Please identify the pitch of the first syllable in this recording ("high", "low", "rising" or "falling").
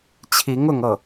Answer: rising